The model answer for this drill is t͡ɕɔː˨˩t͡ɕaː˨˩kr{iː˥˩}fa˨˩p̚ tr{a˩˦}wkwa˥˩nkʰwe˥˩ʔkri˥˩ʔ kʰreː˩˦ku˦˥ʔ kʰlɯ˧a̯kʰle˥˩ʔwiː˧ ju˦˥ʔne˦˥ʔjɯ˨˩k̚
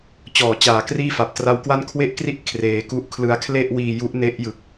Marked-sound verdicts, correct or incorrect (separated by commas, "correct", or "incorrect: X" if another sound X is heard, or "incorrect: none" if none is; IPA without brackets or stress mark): correct, incorrect: a˦˥